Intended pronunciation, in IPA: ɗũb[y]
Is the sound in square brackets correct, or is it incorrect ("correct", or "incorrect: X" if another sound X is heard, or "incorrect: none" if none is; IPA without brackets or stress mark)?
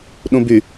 correct